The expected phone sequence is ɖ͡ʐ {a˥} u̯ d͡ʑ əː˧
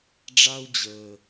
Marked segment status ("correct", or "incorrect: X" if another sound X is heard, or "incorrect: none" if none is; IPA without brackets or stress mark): correct